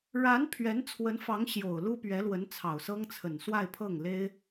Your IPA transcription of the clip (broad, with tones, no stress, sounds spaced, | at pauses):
ɻ a˧˥ n pʰ ɥ ɛ˧˥ n t͡sʰ w ə˧˥ n f ɑ˧˥ ŋ ɕ j o˨˩ ʊ̯ l u˥ p ɥ ɛ˧˥ l w ə˧˥ n t͡sʰ ɑ˨˩ ʊ̯ s ɤ˥ ŋ t͡sʰ ə˨˩ n s w a˥˧ ɪ̯ pʰ ɤ˥˩ ŋ l e˥ ɪ̯